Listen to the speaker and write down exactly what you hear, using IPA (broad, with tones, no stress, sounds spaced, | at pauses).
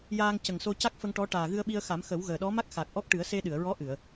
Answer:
j aː˧ ŋ c ə˨˩ ŋ s o˧ c a˦˥ k̚ f ə˧ ŋ ʈ ɔ˧˥ ʈ aː˨˩ ɣ ɨ˧ ə̯ ɓ i˧ ə̯ x a˨˩˦ m x ə˨˩˦ w ɣ əː˨˩ ɗ ɔ˧˥ m a˦˥ k̚ x a˨˩ k̚ ʔ ɔ˦˥ k̚ ʈ ɨ˨˩˦ ə̯ s e˧ ɗ ɨ˨˩˨ ə̯ ɹ ɔ˧˥ ʔ ɨ˨˩˨ ə̯